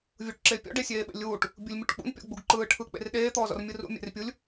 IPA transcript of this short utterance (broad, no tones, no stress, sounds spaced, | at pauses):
vʲ u ʈ ǁ e pʲ ɔ̰ ɖ e sʲ eː ɓ ḛ lʲ uː ʈ | bʲ u lʲ mʲ u ʈ k͡p ṵ n pʲ ɔ̰ ɡ͡b u ɡ ǃ ɯː ʈʰ ɯ k͡p ḛ r ɗ eː t̪ ɔː z ɔ̰ r mʲ ɯ r ṵ mʲ ḛ r pʲ u lʲ